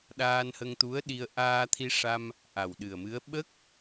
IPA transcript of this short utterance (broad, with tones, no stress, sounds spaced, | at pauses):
ɗ aː˧ n h ə˧ ŋ t̪ u˧˥ ə̯ ɗ i˧ ə̯ ʔ aː˧ t̪ʰ i˧ ʂ a˧ m | ʔ a˨˩ w ɗ ɨ˨˩ ə̯ m ɨ˧˥ ə̯ ɓ ə˦˥ k̚